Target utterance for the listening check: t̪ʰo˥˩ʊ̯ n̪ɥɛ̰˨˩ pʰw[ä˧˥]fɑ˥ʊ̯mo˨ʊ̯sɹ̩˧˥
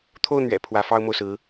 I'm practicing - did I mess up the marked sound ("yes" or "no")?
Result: no